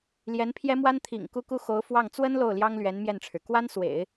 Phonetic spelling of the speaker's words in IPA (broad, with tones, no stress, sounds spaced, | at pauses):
l j ɛ˧˥ n pʰ j ɛ˥ m w a˥ n t̪ʰ ḭ˨˩ ŋ k u˥ k u˥ x o˧˥ ʊ̯ f w ɑ˥˩ ŋ t͡s w ə˥ n l o˥˩ ʊ̯ l j ɑ˥ ŋ l ɥ ɛ˧˥ n m j ɛ˥˩ n ʈ͡ʂʰ ɻ̩˩ k w a˥ n s w ḛ˨˩˦ ɪ̯